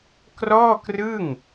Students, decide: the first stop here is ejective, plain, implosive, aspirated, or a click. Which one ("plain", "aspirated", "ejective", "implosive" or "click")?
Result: plain